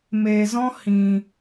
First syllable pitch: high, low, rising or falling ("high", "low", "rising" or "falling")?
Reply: low